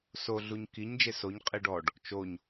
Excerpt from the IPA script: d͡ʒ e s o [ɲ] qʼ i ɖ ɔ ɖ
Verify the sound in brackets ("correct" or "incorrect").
correct